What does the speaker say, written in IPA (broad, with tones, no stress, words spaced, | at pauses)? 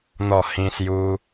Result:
n̪ɔ˥˧hĩ˦ sju˦